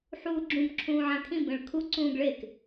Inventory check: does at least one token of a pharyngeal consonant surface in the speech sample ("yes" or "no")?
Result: yes